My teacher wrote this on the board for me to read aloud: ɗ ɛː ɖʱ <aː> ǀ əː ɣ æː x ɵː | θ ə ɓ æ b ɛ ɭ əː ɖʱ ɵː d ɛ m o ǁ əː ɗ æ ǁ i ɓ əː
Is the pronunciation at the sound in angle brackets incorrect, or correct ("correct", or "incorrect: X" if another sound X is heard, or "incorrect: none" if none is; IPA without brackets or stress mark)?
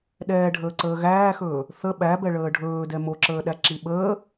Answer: incorrect: əː